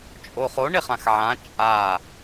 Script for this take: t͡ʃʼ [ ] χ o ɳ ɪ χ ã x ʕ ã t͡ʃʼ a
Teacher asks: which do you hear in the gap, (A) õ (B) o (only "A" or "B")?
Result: B